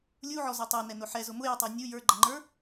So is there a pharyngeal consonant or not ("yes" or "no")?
yes